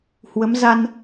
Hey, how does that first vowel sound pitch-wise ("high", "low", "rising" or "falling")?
rising